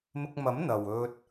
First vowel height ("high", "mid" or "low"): high